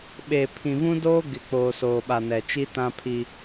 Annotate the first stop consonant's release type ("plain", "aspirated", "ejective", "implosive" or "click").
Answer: implosive